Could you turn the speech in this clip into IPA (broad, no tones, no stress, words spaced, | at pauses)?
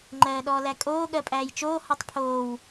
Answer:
ŋ͡ǃɜːɗɔːlækʼoː ɠɜpʼæːjt͡ʃoː hɔtˤpʰoːw